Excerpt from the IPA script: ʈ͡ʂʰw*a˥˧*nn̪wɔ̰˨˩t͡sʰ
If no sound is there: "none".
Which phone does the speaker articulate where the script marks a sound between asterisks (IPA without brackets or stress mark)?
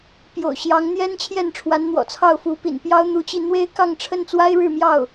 a˧˥